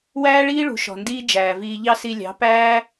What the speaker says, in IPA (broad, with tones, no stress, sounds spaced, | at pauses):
w æː˦ ɭ iː˦ ɭ ṳ˨ ʃ ɔ̤˨ n d iː˦ d͡ʒ æː˨ v iː˧ ʎ ɑ˦ s i˧ lʲ ɑ̤˨˦ p æː˦